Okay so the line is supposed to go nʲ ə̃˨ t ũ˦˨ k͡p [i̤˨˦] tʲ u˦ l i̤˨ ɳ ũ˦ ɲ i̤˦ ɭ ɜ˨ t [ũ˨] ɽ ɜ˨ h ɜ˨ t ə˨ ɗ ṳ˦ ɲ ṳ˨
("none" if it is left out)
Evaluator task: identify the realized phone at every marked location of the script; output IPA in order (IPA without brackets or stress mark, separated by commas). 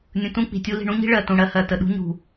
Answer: i̤˨, ũ˨